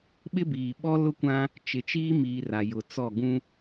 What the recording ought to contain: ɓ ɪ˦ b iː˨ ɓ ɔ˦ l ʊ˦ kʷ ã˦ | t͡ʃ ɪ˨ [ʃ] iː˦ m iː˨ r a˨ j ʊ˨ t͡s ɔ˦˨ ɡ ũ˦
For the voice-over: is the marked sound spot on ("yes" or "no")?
no